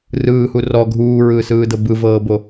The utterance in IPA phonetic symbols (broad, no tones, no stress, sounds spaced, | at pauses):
r ɯː h u r ɔ ɡʱ uː ɹ ɯː s ɯː d ɤ b ɯ v ɤː b o